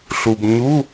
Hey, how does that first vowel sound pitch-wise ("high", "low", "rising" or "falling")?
low